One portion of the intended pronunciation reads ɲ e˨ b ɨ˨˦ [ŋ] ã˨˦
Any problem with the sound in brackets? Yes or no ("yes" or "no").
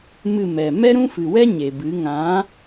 no